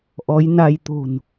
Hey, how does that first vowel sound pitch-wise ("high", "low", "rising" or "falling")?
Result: rising